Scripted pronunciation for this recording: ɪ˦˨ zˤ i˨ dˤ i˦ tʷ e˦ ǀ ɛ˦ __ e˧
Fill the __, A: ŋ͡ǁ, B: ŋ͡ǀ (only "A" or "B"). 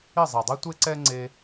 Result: B